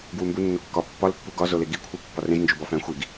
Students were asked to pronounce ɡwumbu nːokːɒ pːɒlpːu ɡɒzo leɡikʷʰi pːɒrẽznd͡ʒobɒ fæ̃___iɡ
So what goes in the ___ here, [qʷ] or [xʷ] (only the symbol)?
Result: xʷ